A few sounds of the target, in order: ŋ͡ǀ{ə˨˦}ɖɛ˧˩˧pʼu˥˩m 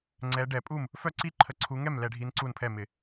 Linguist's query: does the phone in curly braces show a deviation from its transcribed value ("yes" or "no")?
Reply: yes